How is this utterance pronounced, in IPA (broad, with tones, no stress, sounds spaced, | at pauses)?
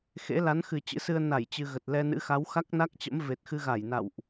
x ḛ˧˥ l a˨˦ n x ɨ˨˩ t͡ɕ ɨ̰˧˥ s ɨ˧ ə̯ n a˧˩ j t͡ɕ ɨ˧ ɣ ə˨˩ t̚ l ɛ˧ n ɨ̰˧˥ x a˨˦ w x a˦˥ k̚ n a˦˥ k̚ t͡ɕ ə̰˧˥ m v e˨˩ t̚ x ɨ˧ ɣ a˧˩ j n a̰˧˨ w ʔ